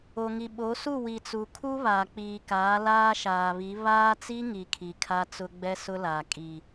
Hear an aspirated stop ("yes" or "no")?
yes